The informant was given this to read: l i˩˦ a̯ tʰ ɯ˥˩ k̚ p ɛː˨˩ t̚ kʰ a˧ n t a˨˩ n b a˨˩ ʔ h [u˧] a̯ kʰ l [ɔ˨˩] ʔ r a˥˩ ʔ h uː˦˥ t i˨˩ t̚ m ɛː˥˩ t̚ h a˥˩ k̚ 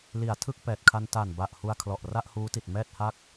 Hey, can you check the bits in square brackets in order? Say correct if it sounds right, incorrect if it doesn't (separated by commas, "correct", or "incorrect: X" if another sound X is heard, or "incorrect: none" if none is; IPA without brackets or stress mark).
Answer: correct, correct